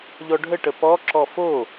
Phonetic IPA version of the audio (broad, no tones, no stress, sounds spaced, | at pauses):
ʎ ɔ ɖʱ ə ʈ ə p ɔ ǁ ɔ f o